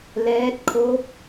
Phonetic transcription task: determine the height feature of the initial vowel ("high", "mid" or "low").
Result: mid